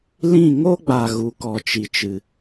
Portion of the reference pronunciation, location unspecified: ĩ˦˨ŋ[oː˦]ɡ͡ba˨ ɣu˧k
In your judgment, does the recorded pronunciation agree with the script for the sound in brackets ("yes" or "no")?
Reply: no